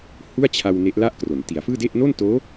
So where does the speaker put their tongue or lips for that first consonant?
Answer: throat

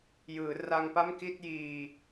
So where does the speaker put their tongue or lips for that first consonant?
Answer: palate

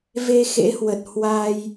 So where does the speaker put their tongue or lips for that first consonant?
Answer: lips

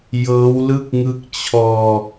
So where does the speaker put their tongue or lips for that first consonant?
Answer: palate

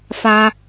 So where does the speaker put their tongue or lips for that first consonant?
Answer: lips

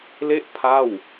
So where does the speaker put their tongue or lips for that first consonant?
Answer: tongue tip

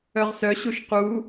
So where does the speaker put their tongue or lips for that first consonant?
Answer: uvula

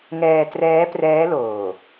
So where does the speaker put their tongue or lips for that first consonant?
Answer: velum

